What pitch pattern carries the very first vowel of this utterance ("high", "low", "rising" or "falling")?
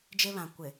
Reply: high